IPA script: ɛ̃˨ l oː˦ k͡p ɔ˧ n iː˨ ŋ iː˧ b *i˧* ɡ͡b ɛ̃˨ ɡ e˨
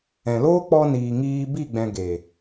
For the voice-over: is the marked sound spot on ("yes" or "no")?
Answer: no